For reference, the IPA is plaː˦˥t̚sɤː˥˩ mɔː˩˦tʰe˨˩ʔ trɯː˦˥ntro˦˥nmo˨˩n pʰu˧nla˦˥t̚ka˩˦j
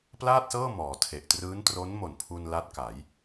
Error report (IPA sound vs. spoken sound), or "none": aː˦˥ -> aː˥˩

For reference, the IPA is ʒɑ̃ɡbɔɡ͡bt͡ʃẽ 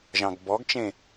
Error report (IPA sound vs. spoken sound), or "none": ɡ͡b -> ɡ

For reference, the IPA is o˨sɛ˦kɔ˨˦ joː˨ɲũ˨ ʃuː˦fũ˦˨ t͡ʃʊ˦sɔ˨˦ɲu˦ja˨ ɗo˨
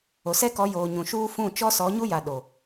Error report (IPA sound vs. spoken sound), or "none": ʊ˦ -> ɔ˦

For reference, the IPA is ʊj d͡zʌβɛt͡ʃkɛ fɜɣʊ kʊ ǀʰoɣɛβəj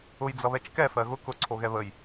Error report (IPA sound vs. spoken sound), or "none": none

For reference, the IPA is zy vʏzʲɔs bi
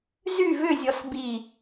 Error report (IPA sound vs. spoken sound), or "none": none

